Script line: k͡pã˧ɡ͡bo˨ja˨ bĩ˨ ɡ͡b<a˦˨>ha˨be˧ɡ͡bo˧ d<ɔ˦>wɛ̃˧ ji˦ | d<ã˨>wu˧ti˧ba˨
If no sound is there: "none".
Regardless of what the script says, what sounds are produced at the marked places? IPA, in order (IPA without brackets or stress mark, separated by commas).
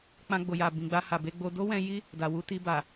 a˧, o˦, a˨